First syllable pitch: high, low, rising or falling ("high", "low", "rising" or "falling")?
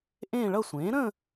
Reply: falling